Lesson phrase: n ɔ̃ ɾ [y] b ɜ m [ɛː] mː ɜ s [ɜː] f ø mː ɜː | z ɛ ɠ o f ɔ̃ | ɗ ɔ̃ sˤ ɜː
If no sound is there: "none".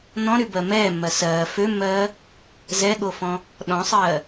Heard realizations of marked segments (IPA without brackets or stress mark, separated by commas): y, ɛː, ɜː